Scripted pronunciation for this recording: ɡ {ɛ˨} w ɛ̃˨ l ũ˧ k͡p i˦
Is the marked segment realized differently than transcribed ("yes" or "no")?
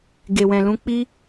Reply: yes